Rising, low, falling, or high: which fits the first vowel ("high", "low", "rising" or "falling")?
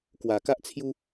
low